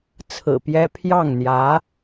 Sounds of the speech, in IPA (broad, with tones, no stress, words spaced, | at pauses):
t͡sʰɹ̩˨˩pjɛ˥ pʰjɑ˥˩ŋn̪jä˧˥